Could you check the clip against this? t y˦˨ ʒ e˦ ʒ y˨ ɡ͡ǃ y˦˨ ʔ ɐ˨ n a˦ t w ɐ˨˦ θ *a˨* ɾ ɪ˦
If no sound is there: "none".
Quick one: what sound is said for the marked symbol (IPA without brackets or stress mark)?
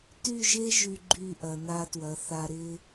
a˨